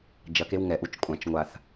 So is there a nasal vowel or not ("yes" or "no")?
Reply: yes